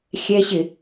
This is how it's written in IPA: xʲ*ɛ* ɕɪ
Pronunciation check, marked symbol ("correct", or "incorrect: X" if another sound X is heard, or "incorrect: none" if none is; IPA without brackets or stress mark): correct